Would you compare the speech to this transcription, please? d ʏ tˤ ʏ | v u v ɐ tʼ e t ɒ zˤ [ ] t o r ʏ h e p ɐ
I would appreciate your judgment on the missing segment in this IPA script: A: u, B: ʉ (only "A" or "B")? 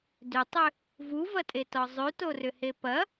B